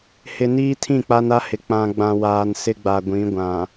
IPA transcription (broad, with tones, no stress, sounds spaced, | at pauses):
h ɪ˨ n iː˦ tʰ ĩ˦˨ k͡p a˦ n a˦ h ɪ˨ k͡p ã˨ ɡ͡b ã˨ w aː˨ n s ɪ˦ ɡ͡b a˨ ɡʷ ĩ˨˦ ɡʷ ã˨